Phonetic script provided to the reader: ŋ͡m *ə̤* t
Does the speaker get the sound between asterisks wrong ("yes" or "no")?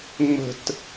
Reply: no